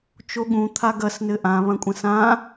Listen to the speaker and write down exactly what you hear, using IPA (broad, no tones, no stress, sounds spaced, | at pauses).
t͡ʃ o ɠ ũ t̪ʰ a ɡ ɐ s n ɘ ʔ ã β ɐ̃ kʷʼ ɐ̃ s ã